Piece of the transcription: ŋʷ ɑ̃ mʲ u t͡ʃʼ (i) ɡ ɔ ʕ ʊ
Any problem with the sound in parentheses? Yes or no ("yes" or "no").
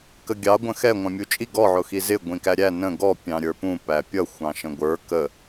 no